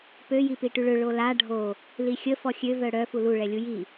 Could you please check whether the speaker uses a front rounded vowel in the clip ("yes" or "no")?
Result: yes